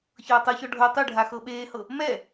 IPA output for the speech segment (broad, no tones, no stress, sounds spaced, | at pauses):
ç ɤː tˤ ɤ ç ɔ ɖʱ ɤ tˤ ɯ ɖʱ a x ɤ ɓ eː h ɤ | m ɛ